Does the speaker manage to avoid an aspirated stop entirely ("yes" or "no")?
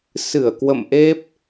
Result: yes